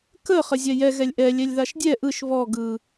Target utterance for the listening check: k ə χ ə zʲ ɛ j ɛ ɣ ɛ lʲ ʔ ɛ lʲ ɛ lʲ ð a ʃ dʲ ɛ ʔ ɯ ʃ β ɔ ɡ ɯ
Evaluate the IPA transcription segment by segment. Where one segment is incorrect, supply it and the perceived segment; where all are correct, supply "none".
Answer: none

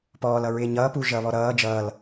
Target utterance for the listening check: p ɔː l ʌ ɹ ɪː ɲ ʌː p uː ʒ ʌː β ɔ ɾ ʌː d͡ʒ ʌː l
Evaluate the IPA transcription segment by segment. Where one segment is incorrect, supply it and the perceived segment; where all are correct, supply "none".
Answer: none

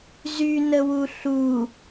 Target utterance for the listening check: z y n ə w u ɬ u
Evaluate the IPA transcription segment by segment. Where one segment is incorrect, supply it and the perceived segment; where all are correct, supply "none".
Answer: none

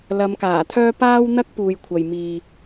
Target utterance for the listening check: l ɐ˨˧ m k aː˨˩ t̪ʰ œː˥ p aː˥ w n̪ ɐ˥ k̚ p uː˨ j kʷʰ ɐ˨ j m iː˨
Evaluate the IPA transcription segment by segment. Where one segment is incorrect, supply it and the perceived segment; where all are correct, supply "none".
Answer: none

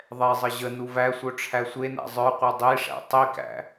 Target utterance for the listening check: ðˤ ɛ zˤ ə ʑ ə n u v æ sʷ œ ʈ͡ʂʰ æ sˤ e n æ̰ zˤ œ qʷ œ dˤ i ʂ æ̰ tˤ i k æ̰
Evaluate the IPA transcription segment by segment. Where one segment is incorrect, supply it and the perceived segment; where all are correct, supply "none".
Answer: sˤ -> sʷ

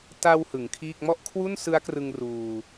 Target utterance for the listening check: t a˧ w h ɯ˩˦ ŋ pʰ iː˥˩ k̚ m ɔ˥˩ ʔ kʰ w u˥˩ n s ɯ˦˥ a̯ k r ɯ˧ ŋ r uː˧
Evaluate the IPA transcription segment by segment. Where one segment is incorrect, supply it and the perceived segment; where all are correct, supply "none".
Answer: pʰ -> kʰ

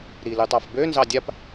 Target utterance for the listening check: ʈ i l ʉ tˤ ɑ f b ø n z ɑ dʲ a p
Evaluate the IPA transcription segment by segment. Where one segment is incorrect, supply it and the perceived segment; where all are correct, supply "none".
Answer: ʈ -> ɾ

